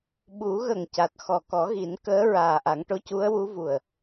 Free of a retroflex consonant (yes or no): no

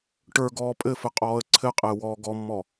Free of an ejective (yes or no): no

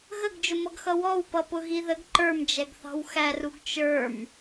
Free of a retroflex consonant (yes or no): yes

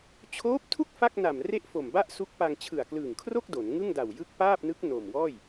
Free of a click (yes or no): yes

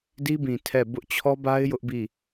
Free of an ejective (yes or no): yes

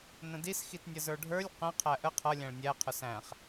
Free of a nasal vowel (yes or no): no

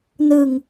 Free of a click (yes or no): yes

